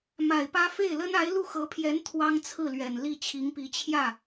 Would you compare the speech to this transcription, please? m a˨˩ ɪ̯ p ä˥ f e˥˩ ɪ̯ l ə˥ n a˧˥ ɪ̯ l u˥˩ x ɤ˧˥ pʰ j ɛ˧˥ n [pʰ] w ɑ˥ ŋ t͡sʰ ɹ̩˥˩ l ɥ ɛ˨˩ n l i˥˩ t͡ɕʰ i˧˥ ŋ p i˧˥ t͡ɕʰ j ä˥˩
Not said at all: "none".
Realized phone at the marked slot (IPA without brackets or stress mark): t̪ʰ